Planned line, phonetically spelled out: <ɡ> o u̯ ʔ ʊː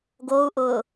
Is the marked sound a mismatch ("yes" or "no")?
no